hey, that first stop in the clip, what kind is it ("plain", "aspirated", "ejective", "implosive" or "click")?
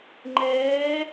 click